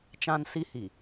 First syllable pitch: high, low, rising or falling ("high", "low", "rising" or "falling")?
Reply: high